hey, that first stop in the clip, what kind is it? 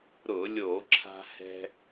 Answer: click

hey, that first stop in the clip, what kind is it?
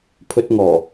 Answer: aspirated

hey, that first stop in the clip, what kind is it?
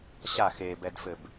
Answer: plain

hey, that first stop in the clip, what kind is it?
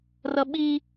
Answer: implosive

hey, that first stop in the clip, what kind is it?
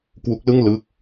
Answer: plain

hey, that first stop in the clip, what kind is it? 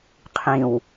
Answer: aspirated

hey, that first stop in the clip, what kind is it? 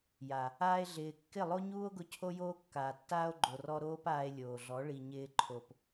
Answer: plain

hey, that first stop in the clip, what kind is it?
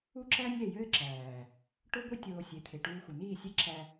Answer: click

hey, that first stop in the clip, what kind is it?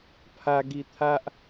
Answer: aspirated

